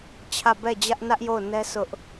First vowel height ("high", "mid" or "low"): low